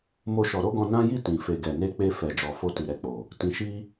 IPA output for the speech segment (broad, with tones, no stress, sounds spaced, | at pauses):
m o˦ ʃ ɔ˧ ɾ o˦ ɡ ɔ̃˧ n ã˦ j i˦˨ t ĩ˨ f e˨ ɡ ɛ˨ n e˧ k͡p e˧ f ɛ˨ d͡ʒ ɔ˨ f o˧ t i˨ ɾ ɛ˨ k͡p o˨ | t ĩ˦ ʃ i˦